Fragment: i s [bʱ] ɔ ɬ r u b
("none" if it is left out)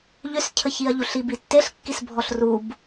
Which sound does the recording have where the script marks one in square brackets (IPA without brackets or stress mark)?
bʱ